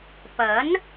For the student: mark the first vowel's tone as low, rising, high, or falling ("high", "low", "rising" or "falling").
rising